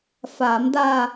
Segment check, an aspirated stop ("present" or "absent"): absent